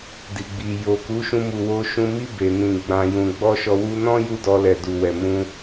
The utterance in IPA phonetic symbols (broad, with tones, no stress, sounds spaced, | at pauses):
d i˨ ɡ͡b i˨ j o˨ k u˨˦ ʃ ũ˧ m u˨ w o˧ ʃ ũ˧ m i˦ b e˧ n ĩ˧ ɡ͡b ã˧ j ũ˧ ɡ͡b ɔ˦ ʃ ɔ˧ w u˧ n ɔ̃˦ j u˦ d ɔ˧ l ɛ˨ d u˨ w ɛ˨ m ũ˧